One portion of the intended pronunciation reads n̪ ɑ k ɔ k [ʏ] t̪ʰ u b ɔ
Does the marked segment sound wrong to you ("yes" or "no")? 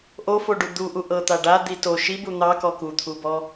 yes